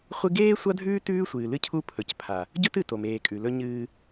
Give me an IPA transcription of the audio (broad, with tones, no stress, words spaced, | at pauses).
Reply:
χʷɨ˦ ɡeː˦ sʷɐ˦dʱʉː˦ tʉː˦sʷɨː˨ lɨ˦cʰu˦pʰɵ˨cpʰa˨ | ɟɵ˦tɨ˨ to˨meː˨kʼʉ˨lɵ˦ ɲɨː˦